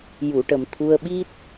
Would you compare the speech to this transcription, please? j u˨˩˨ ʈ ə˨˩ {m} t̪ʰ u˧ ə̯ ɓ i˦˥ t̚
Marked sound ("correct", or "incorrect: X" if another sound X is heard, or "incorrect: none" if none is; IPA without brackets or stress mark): correct